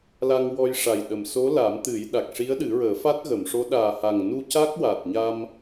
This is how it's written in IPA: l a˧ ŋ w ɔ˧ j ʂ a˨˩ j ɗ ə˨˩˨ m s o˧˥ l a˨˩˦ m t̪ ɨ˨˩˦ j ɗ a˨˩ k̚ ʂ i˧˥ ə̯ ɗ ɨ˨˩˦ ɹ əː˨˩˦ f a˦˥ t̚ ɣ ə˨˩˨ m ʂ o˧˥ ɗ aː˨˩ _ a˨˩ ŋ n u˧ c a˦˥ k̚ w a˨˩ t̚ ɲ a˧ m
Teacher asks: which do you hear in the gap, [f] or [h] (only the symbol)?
h